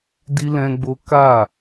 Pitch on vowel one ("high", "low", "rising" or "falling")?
high